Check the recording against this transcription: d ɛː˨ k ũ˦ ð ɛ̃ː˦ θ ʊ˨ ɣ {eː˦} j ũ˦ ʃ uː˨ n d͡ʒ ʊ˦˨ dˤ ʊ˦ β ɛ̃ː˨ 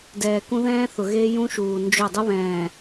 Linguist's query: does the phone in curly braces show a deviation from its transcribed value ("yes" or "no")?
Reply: no